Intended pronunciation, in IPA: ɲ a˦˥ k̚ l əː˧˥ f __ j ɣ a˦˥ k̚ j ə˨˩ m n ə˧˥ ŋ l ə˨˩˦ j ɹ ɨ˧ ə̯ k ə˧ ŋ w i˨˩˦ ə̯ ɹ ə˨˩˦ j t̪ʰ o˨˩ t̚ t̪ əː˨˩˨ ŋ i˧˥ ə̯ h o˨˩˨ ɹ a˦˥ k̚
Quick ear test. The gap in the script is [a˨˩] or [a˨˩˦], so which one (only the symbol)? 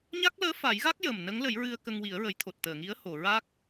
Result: a˨˩˦